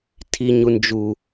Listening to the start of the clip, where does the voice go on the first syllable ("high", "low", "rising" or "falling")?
high